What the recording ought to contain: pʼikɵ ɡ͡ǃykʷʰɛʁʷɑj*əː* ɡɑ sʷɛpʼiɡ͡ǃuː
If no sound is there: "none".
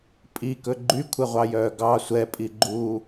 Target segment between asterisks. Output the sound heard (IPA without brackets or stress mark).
œː